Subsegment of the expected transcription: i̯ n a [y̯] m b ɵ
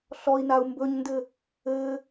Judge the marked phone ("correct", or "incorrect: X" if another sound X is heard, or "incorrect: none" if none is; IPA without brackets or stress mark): incorrect: u̯